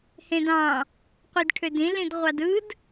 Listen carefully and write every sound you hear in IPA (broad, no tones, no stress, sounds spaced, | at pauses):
h ẽ d ɑ̃ | qʷ i d ʈʰ ø d ĩ l ĩ d ʁʷ ɑ d ɯ d